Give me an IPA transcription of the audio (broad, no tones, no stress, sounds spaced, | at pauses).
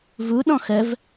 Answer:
v u ɗ ɔ̃ x ə v